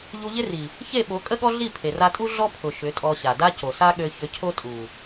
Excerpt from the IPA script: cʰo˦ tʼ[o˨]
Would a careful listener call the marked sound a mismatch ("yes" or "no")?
yes